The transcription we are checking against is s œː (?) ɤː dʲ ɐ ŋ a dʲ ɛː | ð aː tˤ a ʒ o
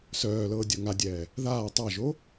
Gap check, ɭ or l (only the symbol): l